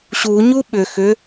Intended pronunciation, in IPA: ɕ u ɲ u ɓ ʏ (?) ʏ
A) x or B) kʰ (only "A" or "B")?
A